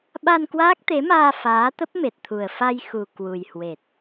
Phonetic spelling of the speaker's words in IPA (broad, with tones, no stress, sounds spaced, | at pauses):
ɓ a˧ n k w aː˦˥ k̚ t̪ e˨˦ m aː˧ f aː˨˦ t̪ ə˦˥ p̚ m e˨˩ t̚ t̪ʰ u˨˩ ə̯ f a˧ j x u˨˩ k w u˨˩ j h w e˨˩ t̚